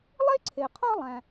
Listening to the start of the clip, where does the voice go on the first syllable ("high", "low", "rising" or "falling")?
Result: high